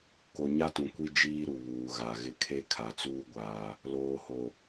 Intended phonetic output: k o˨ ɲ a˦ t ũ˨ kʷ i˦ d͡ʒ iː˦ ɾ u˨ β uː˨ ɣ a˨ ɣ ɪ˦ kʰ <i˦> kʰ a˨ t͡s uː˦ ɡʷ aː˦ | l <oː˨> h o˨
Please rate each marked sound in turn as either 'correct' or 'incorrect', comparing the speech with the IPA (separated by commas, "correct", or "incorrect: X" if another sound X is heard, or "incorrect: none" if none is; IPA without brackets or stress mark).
incorrect: e˦, correct